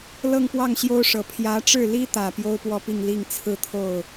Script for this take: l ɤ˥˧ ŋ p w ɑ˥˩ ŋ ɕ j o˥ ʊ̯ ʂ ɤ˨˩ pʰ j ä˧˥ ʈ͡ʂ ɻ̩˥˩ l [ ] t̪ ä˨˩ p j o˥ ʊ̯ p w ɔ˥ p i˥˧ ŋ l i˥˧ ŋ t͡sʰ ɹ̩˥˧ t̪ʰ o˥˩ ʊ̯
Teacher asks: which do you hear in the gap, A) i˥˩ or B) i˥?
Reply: B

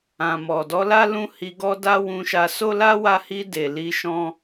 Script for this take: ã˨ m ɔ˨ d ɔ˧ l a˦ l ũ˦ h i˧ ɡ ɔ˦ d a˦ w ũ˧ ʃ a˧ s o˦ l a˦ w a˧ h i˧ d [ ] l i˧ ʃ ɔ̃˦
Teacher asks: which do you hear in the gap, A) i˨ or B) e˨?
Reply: B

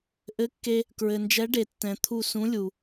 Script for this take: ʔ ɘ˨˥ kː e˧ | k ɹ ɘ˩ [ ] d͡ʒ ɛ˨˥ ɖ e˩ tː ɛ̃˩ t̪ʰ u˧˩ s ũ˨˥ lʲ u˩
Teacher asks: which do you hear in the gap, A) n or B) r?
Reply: A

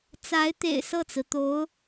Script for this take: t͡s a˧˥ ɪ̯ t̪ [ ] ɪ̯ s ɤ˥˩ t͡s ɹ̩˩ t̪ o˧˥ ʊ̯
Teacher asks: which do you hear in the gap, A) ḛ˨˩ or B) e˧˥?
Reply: A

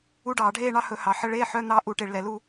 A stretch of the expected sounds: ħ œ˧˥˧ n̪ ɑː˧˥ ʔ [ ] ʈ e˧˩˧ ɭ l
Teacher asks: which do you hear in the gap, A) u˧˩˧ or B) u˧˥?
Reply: A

